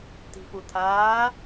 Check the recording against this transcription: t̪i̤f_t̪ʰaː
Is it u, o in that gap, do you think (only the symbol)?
u